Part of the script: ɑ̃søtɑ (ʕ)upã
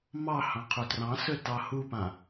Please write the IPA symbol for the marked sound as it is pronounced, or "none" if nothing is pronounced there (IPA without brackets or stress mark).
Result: h